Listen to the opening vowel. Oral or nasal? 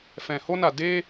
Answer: nasal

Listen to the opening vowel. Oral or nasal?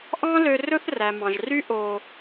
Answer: nasal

